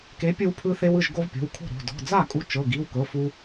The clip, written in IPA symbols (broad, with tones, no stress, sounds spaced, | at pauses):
k e˨˥ pʲ ɯ˧ w pʰ ɯ˧ θ e˧ w ɯ˥˩ ʒ ɡ o˧ v pʲ o̤˩˧˩ w kʰ o̤˥˩ ɾ o̤˩˧˩ d ɔ̤˩˧˩ d͡z a˥˩ kʼ u˧ t͡ʃ ɤ˩˧˩ ɡ i˩˧˩ w k ɤ˩˧˩ f u˧